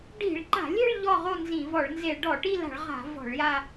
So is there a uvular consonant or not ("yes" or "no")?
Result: yes